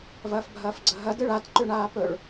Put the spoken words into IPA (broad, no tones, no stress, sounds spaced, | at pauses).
v ɐː f bʱ ɐː f ɡ͡ǀ ɐ ɦ ɐ d ɨ ɭ a t ǃ ʉ ɳ aː p ɵ ɭ